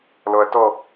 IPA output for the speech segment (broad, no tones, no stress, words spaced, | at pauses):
lɔɐ̯tɔ